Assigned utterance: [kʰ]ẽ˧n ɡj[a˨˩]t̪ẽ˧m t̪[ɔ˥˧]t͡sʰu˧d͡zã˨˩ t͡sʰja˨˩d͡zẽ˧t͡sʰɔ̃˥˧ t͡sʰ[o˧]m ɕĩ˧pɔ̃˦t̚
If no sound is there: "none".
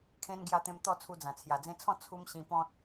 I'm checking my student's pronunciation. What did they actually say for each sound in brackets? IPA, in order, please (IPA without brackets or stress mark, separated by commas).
kʰ, a˧, ɔ˥˧, u˧